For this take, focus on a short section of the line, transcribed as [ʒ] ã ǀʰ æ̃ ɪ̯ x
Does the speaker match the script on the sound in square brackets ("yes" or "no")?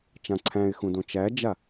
no